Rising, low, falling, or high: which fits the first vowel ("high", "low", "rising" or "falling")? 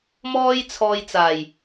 high